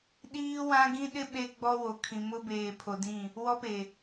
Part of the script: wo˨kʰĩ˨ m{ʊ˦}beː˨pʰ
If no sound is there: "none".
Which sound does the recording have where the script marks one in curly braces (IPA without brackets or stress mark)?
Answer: ʊ˦